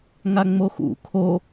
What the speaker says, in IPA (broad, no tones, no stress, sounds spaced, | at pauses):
ŋ a ŋ͡m o x ṵ kʰ o